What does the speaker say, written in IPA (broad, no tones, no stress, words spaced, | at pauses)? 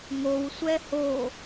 ŋowsʷɛ ho